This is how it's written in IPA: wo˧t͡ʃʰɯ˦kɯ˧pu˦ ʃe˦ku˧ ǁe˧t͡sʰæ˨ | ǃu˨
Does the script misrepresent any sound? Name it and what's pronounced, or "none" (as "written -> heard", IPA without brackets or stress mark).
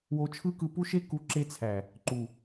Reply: none